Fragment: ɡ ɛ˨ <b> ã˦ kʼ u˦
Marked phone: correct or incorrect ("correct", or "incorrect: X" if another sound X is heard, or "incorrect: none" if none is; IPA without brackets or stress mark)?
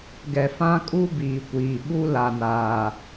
incorrect: f